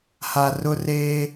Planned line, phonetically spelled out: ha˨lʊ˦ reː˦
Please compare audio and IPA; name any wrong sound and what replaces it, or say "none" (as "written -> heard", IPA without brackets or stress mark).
l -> r